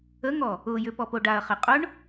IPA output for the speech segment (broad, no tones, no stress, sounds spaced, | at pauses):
ə ŋ ɔ | ʊ j ʏ p ɔ p o ɖ a ɐ̯ χ e qʼ ʊ ɳ